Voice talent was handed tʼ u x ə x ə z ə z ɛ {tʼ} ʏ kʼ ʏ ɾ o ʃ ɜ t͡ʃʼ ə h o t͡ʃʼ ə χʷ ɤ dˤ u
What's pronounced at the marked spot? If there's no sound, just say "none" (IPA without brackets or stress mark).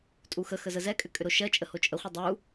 kʼ